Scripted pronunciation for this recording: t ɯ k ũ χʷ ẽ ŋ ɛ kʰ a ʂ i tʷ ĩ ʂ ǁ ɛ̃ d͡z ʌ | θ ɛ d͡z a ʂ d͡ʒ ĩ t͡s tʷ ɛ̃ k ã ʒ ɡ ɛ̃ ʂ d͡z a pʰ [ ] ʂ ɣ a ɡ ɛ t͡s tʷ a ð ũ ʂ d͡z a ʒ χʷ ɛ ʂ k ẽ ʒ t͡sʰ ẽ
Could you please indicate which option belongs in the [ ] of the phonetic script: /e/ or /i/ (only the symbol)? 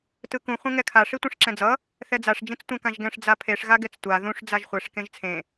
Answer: e